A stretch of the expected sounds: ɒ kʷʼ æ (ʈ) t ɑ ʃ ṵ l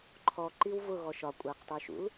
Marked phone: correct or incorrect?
incorrect